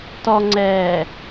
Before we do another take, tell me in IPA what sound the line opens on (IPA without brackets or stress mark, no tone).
t